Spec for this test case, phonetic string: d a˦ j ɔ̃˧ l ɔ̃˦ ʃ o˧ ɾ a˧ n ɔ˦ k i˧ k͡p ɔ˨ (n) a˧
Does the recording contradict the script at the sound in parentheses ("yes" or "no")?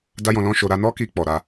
yes